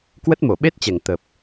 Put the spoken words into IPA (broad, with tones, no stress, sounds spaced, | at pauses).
k w ə˦˥ t̚ m o˧˩ ɓ e˦˥ t̚ t͡ɕ ɛ˧˩ ŋ t̪ ə˨˩ p̚